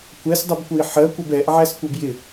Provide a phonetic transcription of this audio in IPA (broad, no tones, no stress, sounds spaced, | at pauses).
kʷ ɛ s dˤ u b kʷ ə i̯ ħ ɜ kʷ ə b ɛ ʔ ʕ æ s kʷ ʌ b j ɪ